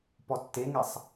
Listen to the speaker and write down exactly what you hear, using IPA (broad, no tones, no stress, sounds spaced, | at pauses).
p ɔ tː e ŋ ɛ sˤ